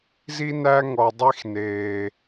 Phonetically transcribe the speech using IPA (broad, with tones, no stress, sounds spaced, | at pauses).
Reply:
z i˦ n æ˦ ŋ ɔ˨ dˤ i˦ x n eː˨